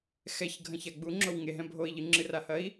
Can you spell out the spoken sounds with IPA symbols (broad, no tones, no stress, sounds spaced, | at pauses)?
x ɛ ç ɡʱ ɐ̃ ç a ɡ͡b u ŋ͡ǁ o w ŋ e ɦ ɛ̃ bʱ o i̯ ʎ ɨ ŋ͡ǁ ɨ r a h ɐ i̯